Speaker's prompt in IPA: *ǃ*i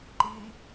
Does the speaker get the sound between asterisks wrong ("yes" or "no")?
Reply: no